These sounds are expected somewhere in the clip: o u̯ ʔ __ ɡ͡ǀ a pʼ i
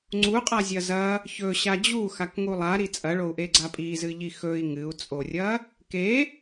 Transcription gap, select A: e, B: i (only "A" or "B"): A